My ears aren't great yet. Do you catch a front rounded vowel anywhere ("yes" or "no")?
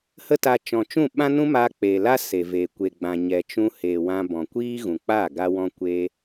no